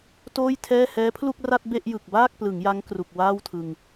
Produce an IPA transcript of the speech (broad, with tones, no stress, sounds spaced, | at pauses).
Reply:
t oː˥˩ j tʰ ɛː˥˩ h ɛː˦˥ pʰ l u˥˩ k̚ r a˥˩ t̚ b e˥˩ ʔ j ɯ˨˩ k̚ b aː˥˩ k̚ p l ɯ˩˦ ŋ j a˦˥ ŋ k r u˨˩ k̚ w aː˥˩ w tʰ ɯ˧ ŋ